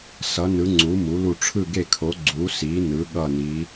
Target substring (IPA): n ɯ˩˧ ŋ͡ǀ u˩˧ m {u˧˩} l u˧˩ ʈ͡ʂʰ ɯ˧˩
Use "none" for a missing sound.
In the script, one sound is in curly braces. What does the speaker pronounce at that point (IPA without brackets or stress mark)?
u˩˧